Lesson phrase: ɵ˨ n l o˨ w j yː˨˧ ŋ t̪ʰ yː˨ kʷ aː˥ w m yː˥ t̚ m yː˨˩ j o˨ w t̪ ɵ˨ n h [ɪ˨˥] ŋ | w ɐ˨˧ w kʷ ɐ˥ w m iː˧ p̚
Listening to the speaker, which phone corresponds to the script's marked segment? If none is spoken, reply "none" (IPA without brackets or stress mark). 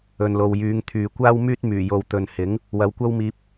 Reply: ɪ˨˥